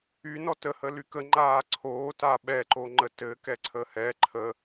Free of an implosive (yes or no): no